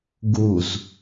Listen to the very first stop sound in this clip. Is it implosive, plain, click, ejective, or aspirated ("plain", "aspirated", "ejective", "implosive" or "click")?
plain